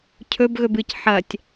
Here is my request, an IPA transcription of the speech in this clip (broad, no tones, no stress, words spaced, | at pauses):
cʰɵbɣɵb ɨc ħɐtʲ